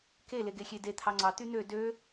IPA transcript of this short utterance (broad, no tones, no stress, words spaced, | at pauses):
ke leɡexʲede t̪ʰɑŋ͡ǀɑ t̪yn̪ø dø